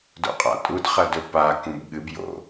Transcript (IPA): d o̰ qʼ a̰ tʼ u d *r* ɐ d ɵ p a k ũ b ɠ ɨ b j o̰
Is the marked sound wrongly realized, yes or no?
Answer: yes